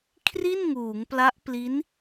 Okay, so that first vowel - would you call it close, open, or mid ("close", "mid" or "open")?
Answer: close